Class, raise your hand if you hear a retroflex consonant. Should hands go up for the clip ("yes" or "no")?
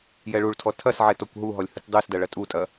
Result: yes